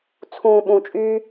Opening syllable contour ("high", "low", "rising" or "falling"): high